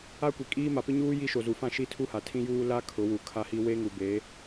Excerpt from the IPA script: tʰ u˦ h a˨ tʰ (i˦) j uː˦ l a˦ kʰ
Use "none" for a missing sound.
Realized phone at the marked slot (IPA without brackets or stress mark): ĩ˦